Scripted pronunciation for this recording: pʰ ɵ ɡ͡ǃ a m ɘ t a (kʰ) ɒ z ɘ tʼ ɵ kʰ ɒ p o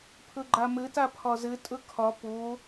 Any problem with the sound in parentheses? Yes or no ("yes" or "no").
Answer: yes